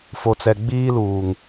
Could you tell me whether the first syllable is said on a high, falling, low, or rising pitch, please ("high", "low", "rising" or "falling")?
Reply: low